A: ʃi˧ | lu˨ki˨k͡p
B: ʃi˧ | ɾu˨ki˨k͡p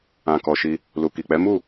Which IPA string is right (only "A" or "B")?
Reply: A